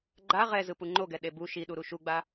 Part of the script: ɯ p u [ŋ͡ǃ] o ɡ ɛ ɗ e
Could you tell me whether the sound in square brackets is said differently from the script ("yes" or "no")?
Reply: no